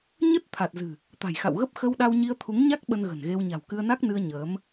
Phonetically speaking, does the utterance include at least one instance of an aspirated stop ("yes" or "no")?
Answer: yes